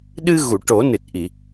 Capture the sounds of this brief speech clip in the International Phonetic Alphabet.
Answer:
ɗ ɨ˧ ɣ u˨˩˨ ʈ o˨˩˦ n ɨ˨˩ t̚ ʔ i˨˩˨

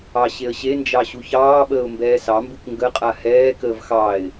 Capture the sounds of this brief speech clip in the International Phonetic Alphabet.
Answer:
ɑ ɕ e ə̯ ɕ e n d͡ʒ ɑ ɕ u ç ɑː ɓ əː ʊ̯ m b ɛː s ɑ m b u k ŋ ɡ ə qʼ a h ɛː k əː v x ɑ ɪ̯

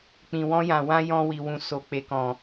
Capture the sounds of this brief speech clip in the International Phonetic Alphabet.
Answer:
k͡p ĩ˨ w ɔ̃˧ j ã˨ w ã˧ j ɔ̃˧ w i˨ w ũ˨ s o˨ k͡p e˨ k ɔ̃˨

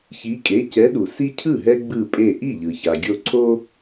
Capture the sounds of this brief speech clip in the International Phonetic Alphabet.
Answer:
ç i˨˦ kʼ e˩˧˩ c ɛ˨˦ ɗ u˩ s i˦ cʰ ɯ˥˩ ɦ ɛ˦ ɡ͡b ɯ˧˩ pʼ e˧˩ ʔ i˥˩ ʎ ɯ˩ ç a˩ ɡʲ o˧˩ ǀʰ o˦

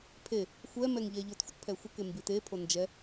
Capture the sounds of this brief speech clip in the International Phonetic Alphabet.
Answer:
pʰ e | xʷ ɛ m ɛ ŋ ʎ ɛ ʎ o t xʷ ə t pʰ ɛ xʷ ə k e m b i t e pʰ o n d͡ʒ ɛ

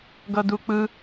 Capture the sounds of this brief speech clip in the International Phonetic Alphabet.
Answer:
ɡ ʌ d u k͡p ɯ

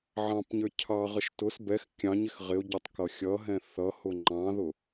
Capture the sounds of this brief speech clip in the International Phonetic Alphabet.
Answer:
ʕ ɑ̃ p ɲ ə˞ cʰ ɑ ʁ ə ʃ t ʊ s b ɛ x kʲ ɑ̃ ɲ ɪ x ʁ ɪ ʊ̯ ɟ ʌ tˤ k ʌ xʲ ʌ ɦ ɛ̃ θ ʌ h ʊ ŋ͡ǃ ɑ̃ ð ʊ

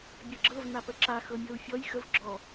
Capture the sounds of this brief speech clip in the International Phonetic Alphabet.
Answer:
bʲ ɤ ɡ͡ǁ ɤ v n a p ə ǁ a x ɤ mʲ ɤ u̯ fʲ ɔ j x ə v ɡ͡ǁ ɔ

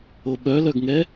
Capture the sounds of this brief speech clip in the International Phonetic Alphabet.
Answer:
o ɓ œ l œ ɡ ŋ ɛ

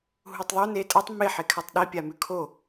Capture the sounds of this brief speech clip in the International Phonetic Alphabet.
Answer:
ɦ u tˤ ðˤ o n e tʼ ɐ tˤ m e ħ e kʰ a tˤ ɗ i pʲ a m ʉ kʰ o

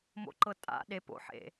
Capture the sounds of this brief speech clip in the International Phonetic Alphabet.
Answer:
m o̰ ǃ ɤ tʼ a̰ ɗ e p o̰ ħ ḛ

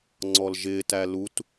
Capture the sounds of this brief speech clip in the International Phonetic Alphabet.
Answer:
ŋ͡ǀ ɔ l ʒ ɪː t æ l u t

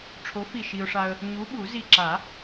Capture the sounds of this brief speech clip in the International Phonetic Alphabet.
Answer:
ʈ͡ʂʰ o˨˥ f i˧˩ ʃ i˧ ʊ̯ ʂ a˧ ə̯ | ɲ u˨˥ ɓ u˨˩˦ z i˧˩ ǁ a˨˩˦

